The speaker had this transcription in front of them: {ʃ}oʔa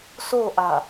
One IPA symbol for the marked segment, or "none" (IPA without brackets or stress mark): s